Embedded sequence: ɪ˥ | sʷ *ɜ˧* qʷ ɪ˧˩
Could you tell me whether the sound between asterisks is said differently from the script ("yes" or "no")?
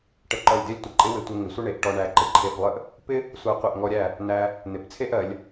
no